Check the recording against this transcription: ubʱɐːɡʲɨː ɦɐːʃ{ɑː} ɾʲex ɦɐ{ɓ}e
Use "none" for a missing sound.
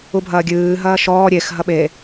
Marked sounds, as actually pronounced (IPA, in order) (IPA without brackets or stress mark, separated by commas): ɔː, ɓ